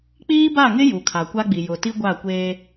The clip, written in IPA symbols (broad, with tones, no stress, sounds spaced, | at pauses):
k͡p iː˦ b a˦˨ ŋ ɪ˦ j u˨ kʰ a˨ kʷ a˦ ɡ͡b i˨ j ʊ˨ t i˦ ɡʷ a˦˨ kʷ eː˦